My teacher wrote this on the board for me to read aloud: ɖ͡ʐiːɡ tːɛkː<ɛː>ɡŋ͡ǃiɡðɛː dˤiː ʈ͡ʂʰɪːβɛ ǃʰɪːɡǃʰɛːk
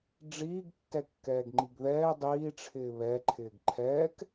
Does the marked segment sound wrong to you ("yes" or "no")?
no